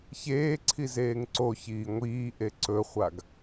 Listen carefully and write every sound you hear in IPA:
ç eː ǀʰ i z eː ŋ ǀ o ç iː ŋʷ iː ʔ e ǀ ɵ χʷ a ɡ

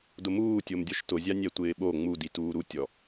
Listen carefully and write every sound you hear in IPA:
d ʊ m uː tʲ o m dʲ ɔ ʃ t ʊ zʲ a nʲ ɛ tʷ ɪː ɓ o ŋ͡m u d i t uː ɾ u tʲ ɔ

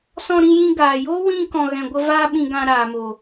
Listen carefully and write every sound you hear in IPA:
s ɔ̃˧ ɾ ĩ˧ j ĩ˧ ɡ aː˨ j oː˦ w ĩ˧ k ɔ̃˨ ɣ ɛ̃˨ ɡʷ ə˧ v aː˦ ɓ ĩ˧ ɡ ã˧ ɾ aː˨ m o˨

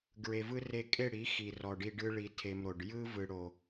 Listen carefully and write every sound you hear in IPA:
ɡ ɹ e˧ v ɯ˦ r e˧ kʼ e˦˨ ɽ i˨˦ x i˨ r ɔ˨ ɖ i˧ ɖ ɯ˦ ɭ i˧ tʰ e˧ m ɾ o˨ ɖ j ɯ˦ v ɯ˨ ɽ o˨

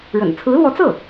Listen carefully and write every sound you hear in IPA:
ɻ ə̰˨˩ n t͡sʰ ɹ̩˧˥ l w ɔ˧˥ t͡s ɤ˥˩

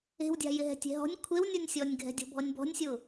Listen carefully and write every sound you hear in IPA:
e̤ w dʲ a̤ j ɪ ɦ ɛ̤ tʲ e̤ ɦ ɔ̤ nʲ kʷʰ e w nʲ ɔ nʲ sʲ ɔ nʲ ɡʱ ɛ̤ dʲ ɔ̤ bʱ ɔ nʲ b ɔ̤ nʲ sʲ ʊ

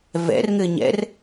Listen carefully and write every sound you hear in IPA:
v ɛ̰ r ŋ ɘ ɲ ɛ̰ r

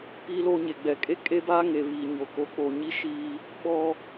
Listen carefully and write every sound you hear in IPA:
p iː˦ l o˦ ɲ e˨ ɡ͡b ɛ˨ kʼ e˦ kʼ e˦ b aː˦ ŋ e˨ β iː˨ ɲ o˨ k o˨ k͡p o˨ ɲ i˦ ʃ iː˦ | ɓ ɔ˦

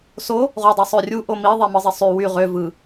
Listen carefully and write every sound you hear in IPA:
s o | ʁ u dˤ e sˤ ø rʲ u ʔ o m i ðˤ e m ɯ zˤ e sˤ y w y ʁ ø v ɯ

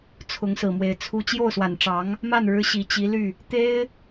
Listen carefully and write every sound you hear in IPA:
t͡sʰ ʊ˧˥ ŋ s ɹ̩˨˩ m w e˧˥ ɪ̯ t͡sʰ u˥ t͡ɕ j o˥˩ ʊ̯ s w a˨˩ n ʈ͡ʂ ɑ˧˥ ŋ | m a˥˩ n ɻ ɻ̩˧˥ ɕ i˨˩ t͡ɕ i˧˥ l y˥˩ | t̪ e˥ ɪ̯

